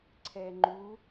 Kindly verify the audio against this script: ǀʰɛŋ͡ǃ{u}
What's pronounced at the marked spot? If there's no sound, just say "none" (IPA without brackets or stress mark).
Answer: u